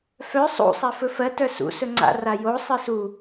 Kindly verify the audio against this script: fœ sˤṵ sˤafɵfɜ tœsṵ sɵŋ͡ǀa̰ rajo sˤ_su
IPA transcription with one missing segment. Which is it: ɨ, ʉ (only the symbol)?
ɨ